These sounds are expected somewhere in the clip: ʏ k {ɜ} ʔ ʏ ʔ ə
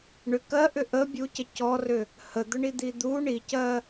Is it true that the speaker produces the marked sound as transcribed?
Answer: yes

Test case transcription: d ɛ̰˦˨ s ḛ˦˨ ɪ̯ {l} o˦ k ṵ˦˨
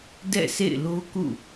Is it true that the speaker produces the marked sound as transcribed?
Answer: yes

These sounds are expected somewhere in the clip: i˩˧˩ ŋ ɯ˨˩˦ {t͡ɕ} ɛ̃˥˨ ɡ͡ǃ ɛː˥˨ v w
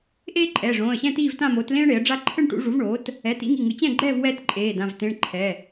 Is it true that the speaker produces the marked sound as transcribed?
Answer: yes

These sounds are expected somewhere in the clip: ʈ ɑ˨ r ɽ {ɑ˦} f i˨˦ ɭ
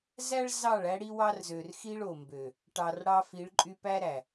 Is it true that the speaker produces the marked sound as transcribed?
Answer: yes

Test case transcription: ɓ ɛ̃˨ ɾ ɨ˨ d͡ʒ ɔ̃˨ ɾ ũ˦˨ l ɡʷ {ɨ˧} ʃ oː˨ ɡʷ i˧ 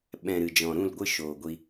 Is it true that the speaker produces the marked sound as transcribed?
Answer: no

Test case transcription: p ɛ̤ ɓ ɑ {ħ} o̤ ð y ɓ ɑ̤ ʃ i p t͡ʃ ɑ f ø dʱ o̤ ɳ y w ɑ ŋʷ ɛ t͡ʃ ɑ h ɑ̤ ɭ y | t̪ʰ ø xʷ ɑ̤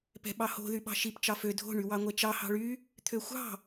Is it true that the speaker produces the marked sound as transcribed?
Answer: no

